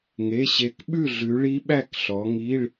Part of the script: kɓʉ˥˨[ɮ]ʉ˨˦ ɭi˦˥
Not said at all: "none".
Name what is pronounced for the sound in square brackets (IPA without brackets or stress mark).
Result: ɮ